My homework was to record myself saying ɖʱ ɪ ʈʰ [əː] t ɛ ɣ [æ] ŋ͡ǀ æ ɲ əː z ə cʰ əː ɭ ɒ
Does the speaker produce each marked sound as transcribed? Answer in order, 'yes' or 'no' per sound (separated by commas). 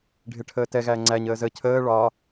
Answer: yes, yes